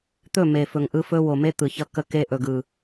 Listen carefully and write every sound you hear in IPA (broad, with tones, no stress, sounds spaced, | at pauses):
t̪ ɵ˦˨ m e˨ f ɵ˨ ŋ ʔ ɯ˦ f ɵ˦ w o˨ m e˦ t̪ ɯ˨ ç ʌ˦ k ə˦ k e˦ ʔ ɵ˨ ɡ ɯ˨